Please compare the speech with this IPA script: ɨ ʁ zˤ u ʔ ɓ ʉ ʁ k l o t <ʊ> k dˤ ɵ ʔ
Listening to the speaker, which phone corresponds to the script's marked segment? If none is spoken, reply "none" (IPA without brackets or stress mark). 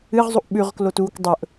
u